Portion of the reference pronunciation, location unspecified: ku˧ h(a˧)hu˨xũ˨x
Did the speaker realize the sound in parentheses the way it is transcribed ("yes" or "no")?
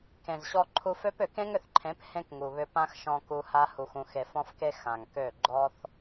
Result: yes